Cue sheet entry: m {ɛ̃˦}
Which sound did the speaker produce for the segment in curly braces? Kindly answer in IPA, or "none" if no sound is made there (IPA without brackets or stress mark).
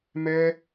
ɛ˦